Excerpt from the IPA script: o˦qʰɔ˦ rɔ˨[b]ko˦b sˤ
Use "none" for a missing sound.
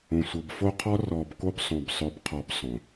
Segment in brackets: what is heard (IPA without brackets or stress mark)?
b